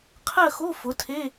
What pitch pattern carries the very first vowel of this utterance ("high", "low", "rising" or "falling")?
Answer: falling